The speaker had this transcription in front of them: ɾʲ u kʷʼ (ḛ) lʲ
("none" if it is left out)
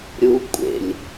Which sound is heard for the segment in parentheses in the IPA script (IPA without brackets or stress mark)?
ḛ